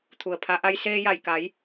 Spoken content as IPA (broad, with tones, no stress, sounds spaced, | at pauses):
t̪ʰ u˩ ə̯ pʰ a˩˧ ʔ a˧ j s eː˧ j a˧˩ j k a˩˧ j